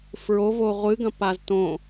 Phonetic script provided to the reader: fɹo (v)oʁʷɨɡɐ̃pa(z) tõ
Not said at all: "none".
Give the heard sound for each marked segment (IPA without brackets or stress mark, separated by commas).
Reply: v, z